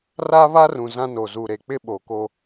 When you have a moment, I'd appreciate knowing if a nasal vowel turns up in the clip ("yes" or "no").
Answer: yes